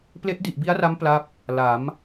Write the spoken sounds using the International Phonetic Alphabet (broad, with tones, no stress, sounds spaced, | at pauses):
p l e˦˥ ʔ d i˨˩ ʔ b i˦˥ a̯ r a˦˥ m p l a˦˥ p̚ | l a˩˦ m